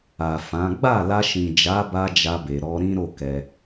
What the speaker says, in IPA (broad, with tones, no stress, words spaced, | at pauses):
a˨fã˨˦ ɡ͡ba˦˨la˧ʃĩ˨ d͡ʒa˨˦ba˧ d͡ʒa˧be˨ ɾɔ˧ɾĩ˦ɾo˦˨ kɛ˧